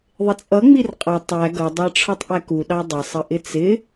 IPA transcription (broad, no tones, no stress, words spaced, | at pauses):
ðˤɪt͡sʼʌ ŋ͡mirqʼʌ tˤæ ɡʌ dˤɑʈ͡ʂʰɔtˤʔæku ɗɑdˤɪ sˤəʔɪt͡sɪ